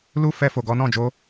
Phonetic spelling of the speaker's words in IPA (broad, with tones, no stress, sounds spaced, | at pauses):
l u˦ f ɛ˧ f o˨ ɡ ɔ˨˦ n ɔ̃˦˨ d͡ʒ o˨˦